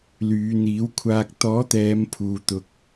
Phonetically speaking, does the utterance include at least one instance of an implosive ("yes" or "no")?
no